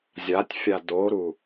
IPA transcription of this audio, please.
zʲ a tʲ fʲ a d o ɾ u

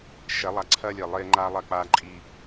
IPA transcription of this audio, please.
ʃ ɛ˨˦ lˠ a˨ ǀʰ ɐː˦ lʲ e˨ lˠ eː˦ ŋ͡ǃ aː˦ lˠ ɐ˦˨ k͡p aː˦ ǃʼ i˦

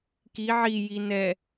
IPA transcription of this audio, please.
k i ʕ i j i n ɛ

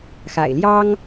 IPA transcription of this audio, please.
x a̰˨˩ ɪ̯ l j ɑ˥ ŋ

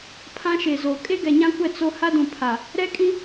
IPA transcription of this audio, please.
pʰ ã˦ ʃ e˨ z o˨ kʼ e˦ ɡ ɛ˨ ɲ ã˦ kʷ ɛ˦˨ t͡s o˦ h a˦ d ũ˨ pʰ a˨ | ɾ ɛ˦ kʼ ĩ˦

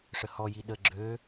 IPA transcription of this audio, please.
ʂ ə h ɔ j i ɗ ə ɡ͡ǁ ø

